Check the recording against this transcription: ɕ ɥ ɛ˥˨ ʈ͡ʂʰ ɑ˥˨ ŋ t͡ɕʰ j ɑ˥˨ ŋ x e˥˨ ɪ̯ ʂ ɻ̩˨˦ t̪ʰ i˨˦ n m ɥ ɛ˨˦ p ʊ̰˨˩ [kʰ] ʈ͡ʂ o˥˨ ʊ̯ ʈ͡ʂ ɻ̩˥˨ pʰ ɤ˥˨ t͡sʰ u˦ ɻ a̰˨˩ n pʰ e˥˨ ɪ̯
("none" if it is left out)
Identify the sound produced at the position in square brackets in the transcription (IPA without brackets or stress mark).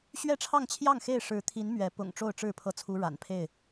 ŋ